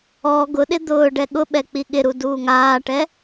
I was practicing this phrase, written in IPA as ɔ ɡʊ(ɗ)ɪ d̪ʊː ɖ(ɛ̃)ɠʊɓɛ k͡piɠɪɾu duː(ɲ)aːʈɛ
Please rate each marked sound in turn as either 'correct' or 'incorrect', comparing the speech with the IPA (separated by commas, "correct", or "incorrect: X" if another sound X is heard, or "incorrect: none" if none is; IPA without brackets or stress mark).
correct, incorrect: ɛ, incorrect: ŋ